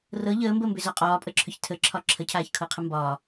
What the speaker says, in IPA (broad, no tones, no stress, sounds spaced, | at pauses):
r ɤ ʎ əː m b əː m b ʏ z ɒ qʼ ɒː pʼ ə ǁʰ ʏ ç tʰ ə ǁʰ ɒ ǁʰ ə cʰ aː ç kʰ ɤ qʰ ə m b ɒː